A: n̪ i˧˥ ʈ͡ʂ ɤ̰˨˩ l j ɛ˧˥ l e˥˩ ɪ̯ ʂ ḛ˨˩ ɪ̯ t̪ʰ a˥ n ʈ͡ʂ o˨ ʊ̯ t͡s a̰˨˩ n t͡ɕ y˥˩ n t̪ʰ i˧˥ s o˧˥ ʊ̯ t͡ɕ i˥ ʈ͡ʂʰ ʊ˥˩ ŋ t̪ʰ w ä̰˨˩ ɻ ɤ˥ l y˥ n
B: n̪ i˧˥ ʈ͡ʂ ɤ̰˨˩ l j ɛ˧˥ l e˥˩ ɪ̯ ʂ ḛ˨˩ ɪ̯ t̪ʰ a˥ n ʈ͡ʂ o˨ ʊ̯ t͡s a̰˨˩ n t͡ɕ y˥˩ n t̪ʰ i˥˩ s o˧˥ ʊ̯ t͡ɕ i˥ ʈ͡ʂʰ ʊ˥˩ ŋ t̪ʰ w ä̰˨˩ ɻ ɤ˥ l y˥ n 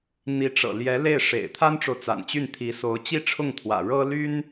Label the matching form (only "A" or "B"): A